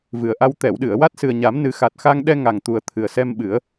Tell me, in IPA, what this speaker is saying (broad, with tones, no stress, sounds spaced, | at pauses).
v ɨ˨˩ ə̯ ʔ a˧ w t̪ ɛ˨˩˨ w ɗ ɨ˨˩˨ ə̯ w a˦˥ t̚ s ɨ˨˩ ə̯ ɲ a˨˩˦ m n ɨ˨˩˦ x a˨˩ t̚ x a˧ ŋ ɗ ɛ˧ ŋ a˨˩ ŋ t̪ u˨˩ ə̯ t̪ʰ ɨ˨˩ ə̯ s ɛ˧ m ɓ ɨ˨˩˦ ə̯